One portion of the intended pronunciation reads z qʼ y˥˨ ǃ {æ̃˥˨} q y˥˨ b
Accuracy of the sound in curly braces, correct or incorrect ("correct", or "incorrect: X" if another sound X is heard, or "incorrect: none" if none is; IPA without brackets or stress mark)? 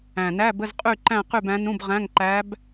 correct